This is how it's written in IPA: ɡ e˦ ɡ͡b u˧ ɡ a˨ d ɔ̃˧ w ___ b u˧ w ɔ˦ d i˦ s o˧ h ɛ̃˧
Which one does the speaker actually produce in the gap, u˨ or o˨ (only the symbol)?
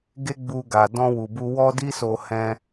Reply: u˨